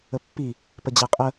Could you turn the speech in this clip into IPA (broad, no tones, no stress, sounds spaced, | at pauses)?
ə pː i | p ə d͡ʑ æ qʼ ə